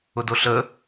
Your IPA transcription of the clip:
ʊ d o ɬ ə

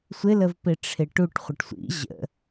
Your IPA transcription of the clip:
sʷ ɪ l ə v p ɪ ʈ͡ʂʰ ɪ ʈ u ʈ χʷ ə ʈ sʷ ḭ ʑ ə̰

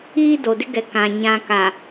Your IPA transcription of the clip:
iː˦ d o˨ d ɪ˦ ɡ ɛ˨ k ã˨ ɲ ã˨ k a˨

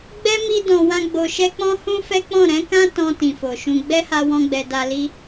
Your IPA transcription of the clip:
ɡ͡b ɛ˦ m i˧ d ɔ̃˨ w ã˧ ɡ͡b o˨ ʃ ɛ˧ k͡p ɔ̃˦ h ũ˦ f ɛ˦ k͡p ɔ̃˦˨ ɾ ɛ̃˨˦ k ã˦ t ɔ̃˧ t ĩ˨ f o˨ ʃ ũ˧ ɡ͡b ɛ˦ h a˧ w ɔ̃˧ ɡ͡b ɛ˨ d a˧ l i˦

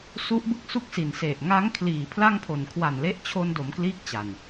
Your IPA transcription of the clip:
s u˦˥ ʔ b ɯ˦˥ k̚ s u˦˥ k̚ s i˨˩ n s e˨˩ ʔ ŋ a˦˥ ŋ kʰ l iː˨˩ pʰ l a˥˩ ŋ pʰ o˨˩ n kʰ w a˨˩ n l e˦˥ ʔ t͡ɕʰ o˧ n d o˩˦ m k l iː˥˩ k̚ t͡ɕ a˨˩ n

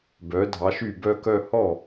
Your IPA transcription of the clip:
b œ˩˥ dʱ ɑ˩˥ ʃ y˥˩ b œ˥˧ k œ˥˧ h ɔ˥˩

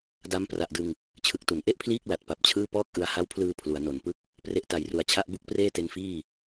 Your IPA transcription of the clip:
d a˦˥ m p r a˨˩ ʔ d ɯ˧ ŋ | t͡ɕʰ ɯ˨˩ k̚ t u˩˦ n ʔ e˥˩ ʔ pʰ l iː˥˩ k̚ l a˨˩ t̚ p a˨˩ p̚ t͡ɕʰ ɯː˥˩ p ɔː˥˩ k̚ ʔ ɯ˧ a̯ h a˦˥ w pʰ l ɯː˧ pʰ l u˩˦ a̯ n o˨˩ n p ɯ˥˩ k̚ | p r e˦˥ ʔ t a˨˩ j r u˨˩ a̯ t͡ɕʰ a˥˩ ʔ b u˥˩ k̚ p r eː˥˩ t e˦˥ n f iː˥˩

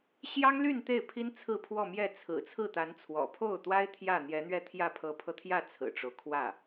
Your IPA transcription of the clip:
ɕ j ɑ˥ ŋ l y˥˧ n t̪ e˥˩ ɪ̯ pʰ i˥ n t͡sʰ ɹ̩˥˧ pʰ w ɔ˥˧ m j ɛ˥˩ t͡sʰ ɹ̩˨˩ t͡sʰ ɹ̩˥˩ t̪ a˧˥ n t͡sʰ w ɔ̰˨˩ pʰ o˥˩ ʊ̯ t̪ w a˥ ɪ̯ t̪ʰ j ä˥˩ n̪ j ɛ˧˥ n̪ ɥ ɛ˥˧ t̪ʰ j ä˥˩ pʰ ɤ˧˥ pʰ ɤ˧ t̪ʰ j ä˥˩ t͡sʰ ɹ̩˨˩ ʈ͡ʂ o˦ ʊ̯ kʰ w ä˥˩

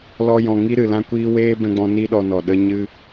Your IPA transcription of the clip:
l ɔ˧ j ɔ̃˨ ŋ i˦ ɾ ɨ˨ l ã˦ kʷ iː˦ w eː˦ b ɛ̃˧ ɡ͡b ɔ̃˧ n i˦ ɗ ɔ˧ n ɔ˨ ɗ ə˧ ɲ ɨ˧

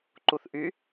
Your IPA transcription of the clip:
ǃ u θ ʔ y

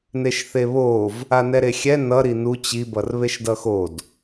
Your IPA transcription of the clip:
n e ʃ θ e β o v | a n ɛ ɾ e xʲ ɛ n ʌ ɾ i n u t͡ɕ i b ʌ r β e ʃ d ʌ x o d

